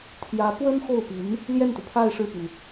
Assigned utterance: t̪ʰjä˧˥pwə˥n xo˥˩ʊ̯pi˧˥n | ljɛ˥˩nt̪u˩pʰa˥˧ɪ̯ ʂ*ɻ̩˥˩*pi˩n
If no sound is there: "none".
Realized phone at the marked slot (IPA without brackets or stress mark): ɻ̩˥˩